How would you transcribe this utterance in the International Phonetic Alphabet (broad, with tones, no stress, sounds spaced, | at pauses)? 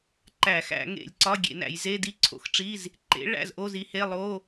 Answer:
ǃ æ˧˩˧ x æ̰˧˩˧ ŋ ḛ˧˩˧ lʲ ǀ ɒ˧˥˧ ɡʲ ḛ˧˩˧ n æ̰˧˩˧ j z e˧˥˧ d i˧˥˧ ǀʰ o̰˩˥ x ʈ͡ʂ i˧˥˧ z | ǃ ḛ˩˥ ɭ æ̰˧˥˧ z ʔ o˧˥˧ z i˩˥ h e˧˥˧ lˠ o˧˥˧